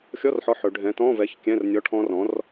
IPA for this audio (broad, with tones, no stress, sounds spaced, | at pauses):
xʲ ɔ˧˥˧ r ħ ɔ˨˥ ħ ɵ˩˧ ɖʱ ɛ̃˨˥ t ɔ̃˧˥˧ v ɛ˨˥ ç kʲ ɛ̃˧˥˧ r nʲ ɔ˧˥˧ ʈʰ ɔ̃˦˥ r ɔ̃˨˥ r